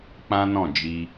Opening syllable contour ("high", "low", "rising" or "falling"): high